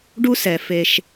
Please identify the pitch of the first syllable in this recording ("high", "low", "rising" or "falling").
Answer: high